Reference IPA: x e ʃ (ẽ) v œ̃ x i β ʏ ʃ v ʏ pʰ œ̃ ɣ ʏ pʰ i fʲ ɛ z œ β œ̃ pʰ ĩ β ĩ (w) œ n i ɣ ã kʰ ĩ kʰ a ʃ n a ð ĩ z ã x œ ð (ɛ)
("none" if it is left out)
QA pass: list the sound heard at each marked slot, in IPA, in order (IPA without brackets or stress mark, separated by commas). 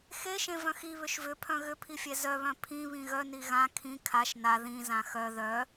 ẽ, ɣ, œ